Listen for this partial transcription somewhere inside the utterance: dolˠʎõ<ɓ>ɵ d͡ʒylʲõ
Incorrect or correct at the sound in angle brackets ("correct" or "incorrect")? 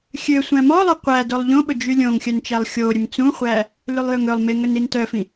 correct